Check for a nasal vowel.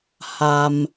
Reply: absent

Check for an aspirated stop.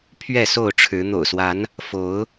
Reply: present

